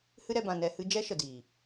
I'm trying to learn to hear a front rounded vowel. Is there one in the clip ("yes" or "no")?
no